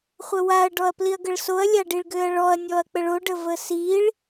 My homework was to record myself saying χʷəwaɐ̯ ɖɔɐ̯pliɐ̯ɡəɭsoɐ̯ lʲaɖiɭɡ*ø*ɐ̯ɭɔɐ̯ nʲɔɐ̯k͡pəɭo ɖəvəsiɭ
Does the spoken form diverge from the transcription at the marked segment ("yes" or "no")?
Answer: no